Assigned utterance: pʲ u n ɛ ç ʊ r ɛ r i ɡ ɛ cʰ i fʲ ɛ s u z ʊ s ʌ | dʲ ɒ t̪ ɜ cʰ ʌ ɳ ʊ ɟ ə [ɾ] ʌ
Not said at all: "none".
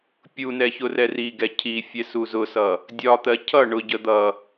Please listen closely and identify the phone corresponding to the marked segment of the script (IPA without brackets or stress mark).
d̪